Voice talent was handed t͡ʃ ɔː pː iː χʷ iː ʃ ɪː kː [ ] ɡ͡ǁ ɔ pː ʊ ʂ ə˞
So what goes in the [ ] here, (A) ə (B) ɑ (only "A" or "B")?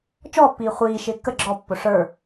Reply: A